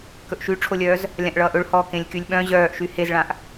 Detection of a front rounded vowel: present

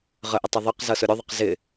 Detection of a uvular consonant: present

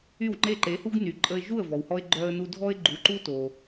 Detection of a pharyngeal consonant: absent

